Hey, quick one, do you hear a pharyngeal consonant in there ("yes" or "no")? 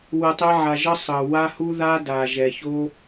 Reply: yes